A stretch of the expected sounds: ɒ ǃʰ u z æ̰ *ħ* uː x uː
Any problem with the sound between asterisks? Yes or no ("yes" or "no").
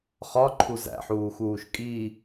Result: no